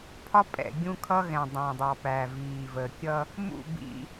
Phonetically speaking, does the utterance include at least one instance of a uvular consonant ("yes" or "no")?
no